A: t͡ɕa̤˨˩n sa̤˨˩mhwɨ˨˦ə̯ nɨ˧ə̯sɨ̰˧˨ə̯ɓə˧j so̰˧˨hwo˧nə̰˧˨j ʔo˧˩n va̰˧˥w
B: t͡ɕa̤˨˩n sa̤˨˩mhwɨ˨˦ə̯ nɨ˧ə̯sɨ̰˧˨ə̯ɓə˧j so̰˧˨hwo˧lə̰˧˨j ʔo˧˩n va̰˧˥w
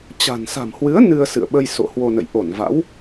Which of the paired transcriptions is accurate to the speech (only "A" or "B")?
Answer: A